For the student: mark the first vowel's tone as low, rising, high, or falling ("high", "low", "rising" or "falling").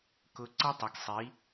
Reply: low